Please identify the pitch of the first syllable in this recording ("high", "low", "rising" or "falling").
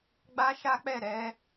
high